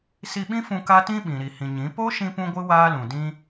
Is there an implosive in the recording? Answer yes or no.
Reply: yes